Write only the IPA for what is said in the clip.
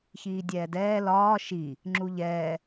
ç iː dʲ ɛː d ɛː l ɒː ʃ i | ŋ͡ǁ u ʎ ɛː

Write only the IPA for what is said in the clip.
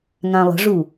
ŋ ã lˠ ə̤ ʐ u

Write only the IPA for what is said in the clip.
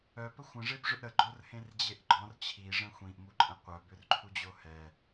œ p ə xʷ ə̃ ʐ e b ʐ ʏ ʔ ɾ ə ɡ͡ǃ o r h ẽ r d͡ʑ e ʔ ɡ͡ǃ ɔ̃ r t͡ɕʰ i ʐ ə̃ xʷ ĩ ʔ m u ǃʼ ə̃ qʷ œ b ʏ r ǃʰ u d͡ʑ o h ɛ

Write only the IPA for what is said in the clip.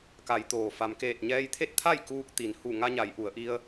k a˩˧ j t̪ oː˩ f a˩ m k eː˧˩ t̚ ɲ ɛː˧ j t̪ʰ e˥˨ t̚ t̪ʰ a˥˨ j k uː˧ k̚ t̪ i˩ n h u˧˩ ŋ a˧ ɲ a˩˧ j ʔ u˩˧ ə̯ ʔ i˧ ə̯

